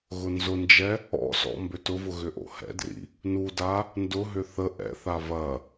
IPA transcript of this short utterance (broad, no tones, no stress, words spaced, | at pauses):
ɣʊnzʊnd͡ʒɛ | ɔ̰sɔ̰ mbøtʊvʊ ɣʏʔo̰hɛ̰drḭ | nuda | ndʊɦʏ θə ʔɛ̰θav ɐ